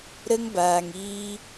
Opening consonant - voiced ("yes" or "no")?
yes